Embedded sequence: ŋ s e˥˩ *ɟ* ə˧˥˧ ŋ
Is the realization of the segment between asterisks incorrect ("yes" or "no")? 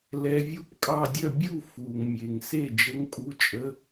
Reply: yes